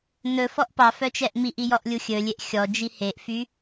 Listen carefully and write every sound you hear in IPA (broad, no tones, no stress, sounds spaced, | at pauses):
n ɵ f ɔ ʔ p ɑ f œ t͡ʃ ɛ ʔ m i ʔ i j ɔ ʔ lʲ u xʲ ɵ lʲ e ʔ xʲ ɔ d͡ʒ i h e ʔ f y